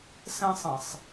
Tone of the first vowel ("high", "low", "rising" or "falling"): high